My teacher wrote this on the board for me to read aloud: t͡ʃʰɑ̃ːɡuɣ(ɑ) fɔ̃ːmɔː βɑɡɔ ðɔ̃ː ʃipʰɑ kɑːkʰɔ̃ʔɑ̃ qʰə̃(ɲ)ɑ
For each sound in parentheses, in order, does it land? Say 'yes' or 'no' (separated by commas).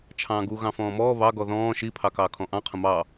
no, no